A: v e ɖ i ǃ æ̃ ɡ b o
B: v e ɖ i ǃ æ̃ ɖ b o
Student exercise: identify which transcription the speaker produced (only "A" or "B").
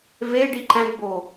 A